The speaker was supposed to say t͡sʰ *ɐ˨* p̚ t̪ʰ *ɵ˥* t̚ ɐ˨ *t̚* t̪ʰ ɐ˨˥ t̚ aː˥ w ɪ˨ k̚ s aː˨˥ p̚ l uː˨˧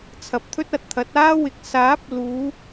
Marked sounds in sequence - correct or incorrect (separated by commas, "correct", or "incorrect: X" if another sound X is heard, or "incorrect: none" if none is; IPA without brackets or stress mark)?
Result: correct, correct, correct